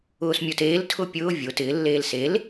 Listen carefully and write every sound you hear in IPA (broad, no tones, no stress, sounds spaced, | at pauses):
ʊː s mʲ o t eː l tʰ ʊ pʲ ʊː vʲ o t ɪː lː eː l s e l